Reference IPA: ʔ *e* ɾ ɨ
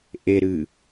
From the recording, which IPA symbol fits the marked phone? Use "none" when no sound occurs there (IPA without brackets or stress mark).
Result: e